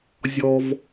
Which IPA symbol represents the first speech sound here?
zʲ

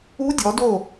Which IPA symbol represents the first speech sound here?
u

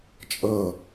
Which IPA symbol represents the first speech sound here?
t͡ʃʼ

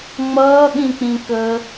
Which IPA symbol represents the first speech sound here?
ŋ͡m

